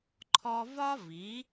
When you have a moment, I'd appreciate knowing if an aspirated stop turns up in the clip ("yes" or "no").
yes